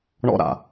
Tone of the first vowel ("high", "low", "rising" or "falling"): high